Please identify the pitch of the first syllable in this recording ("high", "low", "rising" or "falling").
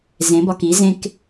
rising